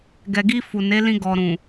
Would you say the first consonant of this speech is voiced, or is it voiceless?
voiced